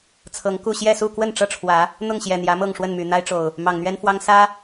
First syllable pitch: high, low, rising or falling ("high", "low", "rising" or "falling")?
rising